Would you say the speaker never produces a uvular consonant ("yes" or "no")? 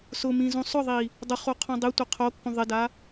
no